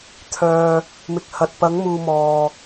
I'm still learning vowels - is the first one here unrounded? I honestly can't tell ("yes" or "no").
no